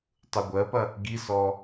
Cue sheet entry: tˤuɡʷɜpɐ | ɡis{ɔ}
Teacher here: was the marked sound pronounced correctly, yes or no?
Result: yes